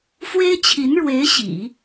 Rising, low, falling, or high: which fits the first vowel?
high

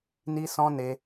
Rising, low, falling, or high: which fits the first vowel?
high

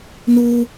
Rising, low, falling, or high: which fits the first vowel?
high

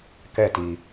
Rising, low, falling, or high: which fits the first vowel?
falling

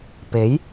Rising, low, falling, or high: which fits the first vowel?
rising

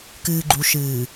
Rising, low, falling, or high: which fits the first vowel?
low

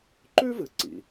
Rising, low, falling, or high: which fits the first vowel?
high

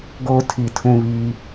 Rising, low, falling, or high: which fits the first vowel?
high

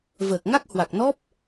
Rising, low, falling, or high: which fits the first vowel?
low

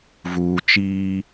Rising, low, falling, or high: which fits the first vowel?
low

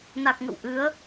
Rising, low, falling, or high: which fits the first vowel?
low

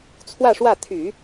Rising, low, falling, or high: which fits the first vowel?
falling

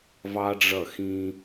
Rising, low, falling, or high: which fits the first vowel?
high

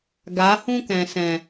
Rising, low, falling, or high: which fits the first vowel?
rising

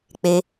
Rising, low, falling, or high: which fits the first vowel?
high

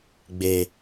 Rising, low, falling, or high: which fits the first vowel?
low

